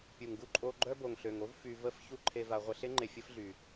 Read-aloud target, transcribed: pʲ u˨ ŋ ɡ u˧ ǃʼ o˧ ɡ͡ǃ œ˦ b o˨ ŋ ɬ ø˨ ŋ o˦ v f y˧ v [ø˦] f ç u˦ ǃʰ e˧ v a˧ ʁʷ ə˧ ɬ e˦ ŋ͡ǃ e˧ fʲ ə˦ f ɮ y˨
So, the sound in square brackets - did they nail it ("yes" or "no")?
no